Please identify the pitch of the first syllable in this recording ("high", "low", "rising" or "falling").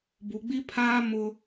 low